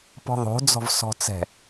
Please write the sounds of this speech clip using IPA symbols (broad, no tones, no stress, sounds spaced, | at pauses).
p ɔ̤ ðˤ o̤ d͡z ɔ̤ v s ɔ̤ t͡s ɛ̤